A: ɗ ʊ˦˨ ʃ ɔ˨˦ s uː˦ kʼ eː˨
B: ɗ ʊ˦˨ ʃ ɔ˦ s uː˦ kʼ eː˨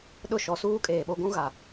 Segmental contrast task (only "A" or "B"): A